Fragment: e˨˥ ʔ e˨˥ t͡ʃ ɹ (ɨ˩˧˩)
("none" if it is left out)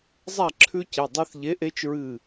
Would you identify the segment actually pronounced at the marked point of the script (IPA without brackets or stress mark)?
ɨ˧˩